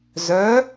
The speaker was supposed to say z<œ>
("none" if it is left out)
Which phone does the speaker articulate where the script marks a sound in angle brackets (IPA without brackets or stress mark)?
œ